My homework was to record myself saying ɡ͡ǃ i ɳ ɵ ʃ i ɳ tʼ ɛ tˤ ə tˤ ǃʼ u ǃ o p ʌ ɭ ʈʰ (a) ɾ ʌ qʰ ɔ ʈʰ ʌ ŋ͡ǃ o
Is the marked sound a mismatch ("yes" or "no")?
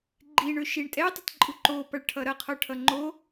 yes